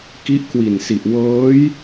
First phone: k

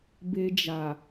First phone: b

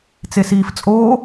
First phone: t͡s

